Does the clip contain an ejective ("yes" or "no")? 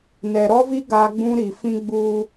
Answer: no